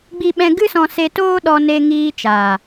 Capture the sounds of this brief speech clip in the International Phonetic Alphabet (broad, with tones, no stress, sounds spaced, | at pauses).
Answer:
ɡ͡b i˦ ɓ ɛ̃˦ ɡ ɨ˦ s ɔ̃˧ s e˧ t oː˦ ɗ ɔ˧ n e˧ ŋ iː˧ t͡ʃ aː˨